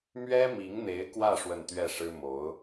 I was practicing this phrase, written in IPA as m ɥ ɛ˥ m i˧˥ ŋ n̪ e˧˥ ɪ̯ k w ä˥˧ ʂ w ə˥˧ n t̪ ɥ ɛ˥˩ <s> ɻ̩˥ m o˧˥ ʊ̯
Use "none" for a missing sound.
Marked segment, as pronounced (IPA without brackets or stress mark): ʂ